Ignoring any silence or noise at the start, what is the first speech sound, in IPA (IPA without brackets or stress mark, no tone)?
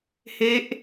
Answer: h